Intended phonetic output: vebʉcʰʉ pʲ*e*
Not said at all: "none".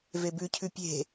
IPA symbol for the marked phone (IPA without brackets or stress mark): e̤